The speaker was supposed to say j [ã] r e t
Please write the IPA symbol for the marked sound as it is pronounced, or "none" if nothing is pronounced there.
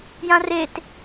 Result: ã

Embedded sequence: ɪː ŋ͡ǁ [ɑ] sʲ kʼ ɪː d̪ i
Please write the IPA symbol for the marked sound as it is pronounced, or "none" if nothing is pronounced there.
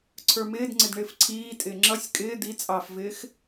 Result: ʌ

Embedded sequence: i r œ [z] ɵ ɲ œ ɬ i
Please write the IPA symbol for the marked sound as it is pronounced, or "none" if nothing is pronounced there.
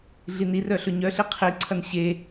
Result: ɬ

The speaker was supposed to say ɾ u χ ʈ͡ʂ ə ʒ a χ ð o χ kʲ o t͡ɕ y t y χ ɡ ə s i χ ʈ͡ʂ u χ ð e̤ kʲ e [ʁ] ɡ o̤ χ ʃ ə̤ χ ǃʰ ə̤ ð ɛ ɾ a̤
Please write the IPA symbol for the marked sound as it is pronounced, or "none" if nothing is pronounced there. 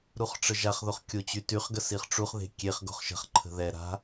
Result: χ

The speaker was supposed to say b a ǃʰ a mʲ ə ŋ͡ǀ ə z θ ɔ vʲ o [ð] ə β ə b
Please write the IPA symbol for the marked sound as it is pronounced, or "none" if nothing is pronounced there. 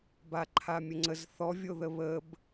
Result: ð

